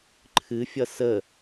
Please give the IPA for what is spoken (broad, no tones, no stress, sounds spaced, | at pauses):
ǃʰ ɨ fʲ ʌ s ə